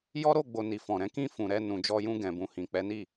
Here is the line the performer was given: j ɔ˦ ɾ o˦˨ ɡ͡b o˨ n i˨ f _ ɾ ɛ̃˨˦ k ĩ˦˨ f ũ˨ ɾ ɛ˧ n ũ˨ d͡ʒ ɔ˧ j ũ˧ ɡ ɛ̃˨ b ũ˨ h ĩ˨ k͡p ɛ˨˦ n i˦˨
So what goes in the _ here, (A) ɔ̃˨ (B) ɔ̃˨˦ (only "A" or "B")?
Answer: A